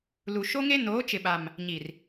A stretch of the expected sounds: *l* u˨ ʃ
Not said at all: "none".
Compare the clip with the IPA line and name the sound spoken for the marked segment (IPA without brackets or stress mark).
l